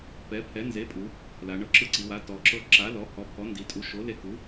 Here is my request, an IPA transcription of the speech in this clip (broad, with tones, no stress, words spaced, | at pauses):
pɛ˩˥pʰɛ˩˥ nze˩˥pʼu˩˧ | la˩˧ɳɤ˧ ǁɯ˧ǀi˩˧wa˩˥ tɔ˩˧ǁɤ˧ ǁa˩˥lɔ˩˥hɔ˩˥ pʰɔ˩˥ndi˩˧tʼu˩˥ʃo˩˥ le˧ku˩˥